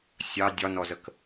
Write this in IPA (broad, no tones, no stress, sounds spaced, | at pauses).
sʲ ɑ dʲ ɒ n ɔ z ə k